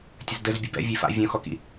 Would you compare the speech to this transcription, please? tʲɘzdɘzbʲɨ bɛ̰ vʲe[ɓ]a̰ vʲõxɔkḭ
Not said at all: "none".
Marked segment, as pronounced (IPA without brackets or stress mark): f